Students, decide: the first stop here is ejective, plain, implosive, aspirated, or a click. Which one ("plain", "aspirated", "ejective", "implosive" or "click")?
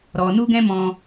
plain